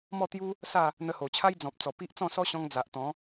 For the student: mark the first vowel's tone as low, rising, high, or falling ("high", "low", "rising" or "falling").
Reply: falling